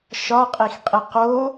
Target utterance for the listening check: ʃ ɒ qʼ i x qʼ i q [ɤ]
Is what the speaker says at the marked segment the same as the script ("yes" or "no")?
no